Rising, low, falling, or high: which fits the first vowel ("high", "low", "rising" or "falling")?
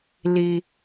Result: low